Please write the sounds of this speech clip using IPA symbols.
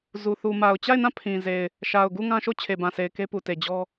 zu˨θu˨ma˨ʊ̯ t͡ɕa˦˨ɪ̯nã˦˨ pʰĩ˨ ze˨ɪ̯ | ʃa˨ʊ̯ɡu˦˨ ŋã˦ʃo˦˨ t͡ɕʰe˨bã˨se˨ɪ̯ ke˦pu˨te˨ d͡ʑɔ˦

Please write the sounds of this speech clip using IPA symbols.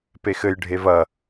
pexɘj ɖʱevɐ

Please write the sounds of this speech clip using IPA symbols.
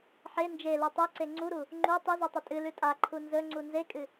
ħe nd͡ʒelu tˤeǀe ŋ͡ǀuɾu | ŋ͡ǃu tˤɨzutˤɵ tʼɨlʉ tʼaǃʰu nzɵŋ͡ǀu nzekʼɨ

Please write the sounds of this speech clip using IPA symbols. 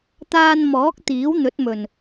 t̪aː˧nmɔː˨˥k̚ t̪iː˨˥wn̪ɵ˨˥t̚mɵ˨˩n

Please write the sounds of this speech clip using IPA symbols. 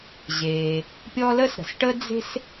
ʑeː˩ | pʲɔ˦lə˥sɾə̤˩s ʈə˦d͡ze̤˦s

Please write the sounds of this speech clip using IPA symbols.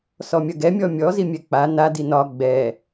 sɔmʲɐɡɛ mʲɔmʲɔ zimʲɛk͡pa na dinɒ ɡ͡bɛ

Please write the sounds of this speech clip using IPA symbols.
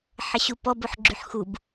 ħəɕupɔb oħɡ͡ǁyħxub

